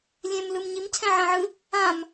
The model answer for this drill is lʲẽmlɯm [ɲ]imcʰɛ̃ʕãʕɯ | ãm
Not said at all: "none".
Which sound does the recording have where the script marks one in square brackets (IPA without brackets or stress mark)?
ɲ